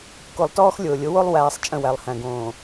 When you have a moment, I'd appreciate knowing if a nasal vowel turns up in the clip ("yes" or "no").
yes